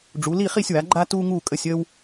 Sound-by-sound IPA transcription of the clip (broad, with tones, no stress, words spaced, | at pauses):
ɖ͡ʐu˩˥ li˥˨χi˥˨sʲwa˩˥ ɡ͡ǃa˥tu˥ ŋuː˥˨ kʼə˥˨sʲəː˥w